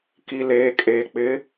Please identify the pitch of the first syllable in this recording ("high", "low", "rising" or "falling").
low